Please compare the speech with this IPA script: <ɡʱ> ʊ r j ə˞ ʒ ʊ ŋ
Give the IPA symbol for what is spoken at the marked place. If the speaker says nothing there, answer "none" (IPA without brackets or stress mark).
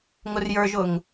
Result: ŋ